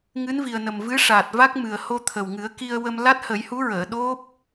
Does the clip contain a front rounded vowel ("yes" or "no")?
no